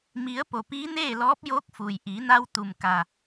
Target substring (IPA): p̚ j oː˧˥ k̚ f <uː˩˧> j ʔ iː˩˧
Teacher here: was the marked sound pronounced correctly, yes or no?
no